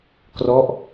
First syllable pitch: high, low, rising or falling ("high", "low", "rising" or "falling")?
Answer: falling